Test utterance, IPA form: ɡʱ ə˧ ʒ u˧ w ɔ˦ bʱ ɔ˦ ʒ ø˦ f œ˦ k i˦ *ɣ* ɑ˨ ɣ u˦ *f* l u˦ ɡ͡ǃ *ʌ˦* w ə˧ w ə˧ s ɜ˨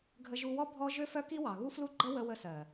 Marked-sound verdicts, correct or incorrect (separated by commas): incorrect, correct, incorrect